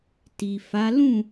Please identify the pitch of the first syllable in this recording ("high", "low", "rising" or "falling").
low